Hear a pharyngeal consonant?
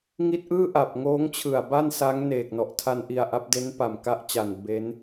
no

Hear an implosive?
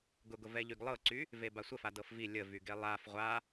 no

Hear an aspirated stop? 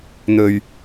no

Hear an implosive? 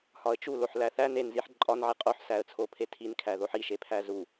no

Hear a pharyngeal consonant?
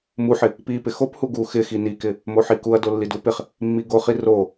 yes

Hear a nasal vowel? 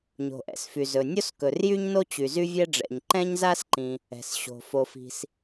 yes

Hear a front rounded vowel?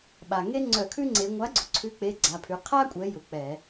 yes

